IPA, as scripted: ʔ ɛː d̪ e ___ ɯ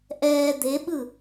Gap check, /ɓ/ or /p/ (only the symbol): ɓ